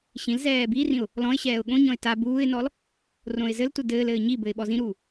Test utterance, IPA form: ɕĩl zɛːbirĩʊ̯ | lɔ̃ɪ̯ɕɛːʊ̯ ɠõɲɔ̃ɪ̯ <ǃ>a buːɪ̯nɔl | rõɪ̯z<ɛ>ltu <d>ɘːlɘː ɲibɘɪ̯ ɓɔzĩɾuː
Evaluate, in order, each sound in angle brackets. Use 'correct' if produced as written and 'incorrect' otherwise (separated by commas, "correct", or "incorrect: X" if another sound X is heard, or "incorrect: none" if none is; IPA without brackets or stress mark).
incorrect: t, incorrect: ɘ, correct